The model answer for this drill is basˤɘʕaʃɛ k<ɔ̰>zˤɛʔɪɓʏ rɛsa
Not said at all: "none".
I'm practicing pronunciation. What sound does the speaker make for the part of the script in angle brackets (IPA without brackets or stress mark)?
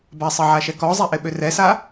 ɔ